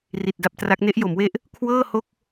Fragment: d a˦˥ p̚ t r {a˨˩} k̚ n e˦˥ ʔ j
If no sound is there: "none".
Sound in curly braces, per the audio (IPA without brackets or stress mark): a˦˥